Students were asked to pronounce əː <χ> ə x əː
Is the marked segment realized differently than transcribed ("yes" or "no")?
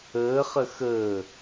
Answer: no